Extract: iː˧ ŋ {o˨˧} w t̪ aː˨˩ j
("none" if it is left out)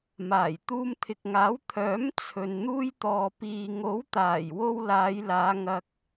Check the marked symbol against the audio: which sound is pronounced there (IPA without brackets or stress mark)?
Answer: o˨˥